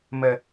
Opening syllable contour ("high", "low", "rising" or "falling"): high